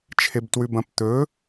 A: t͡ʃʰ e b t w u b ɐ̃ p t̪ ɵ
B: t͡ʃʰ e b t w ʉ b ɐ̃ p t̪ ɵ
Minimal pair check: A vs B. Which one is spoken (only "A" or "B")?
B